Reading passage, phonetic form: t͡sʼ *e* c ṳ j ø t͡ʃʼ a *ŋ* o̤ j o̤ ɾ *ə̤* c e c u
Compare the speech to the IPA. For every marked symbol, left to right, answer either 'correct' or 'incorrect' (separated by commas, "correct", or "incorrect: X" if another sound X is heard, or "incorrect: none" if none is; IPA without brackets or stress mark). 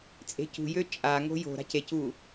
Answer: incorrect: e̤, correct, incorrect: a̤